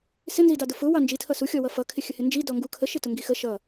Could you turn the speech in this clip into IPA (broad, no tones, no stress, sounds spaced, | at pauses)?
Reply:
s ɪ n z i d ɑ d ʊ f ʊ w ɑ n d͡ʒ i tʰ ʌ s u xʲ ɔ w ʌ f ʌ kʰ ɪ xʲ ə h ɪ n d͡ʒ i d ɔ ŋ ɡ u kʰ ə ʃ ɪ t ʊ ŋ ɡ i x ə ʃ ʌ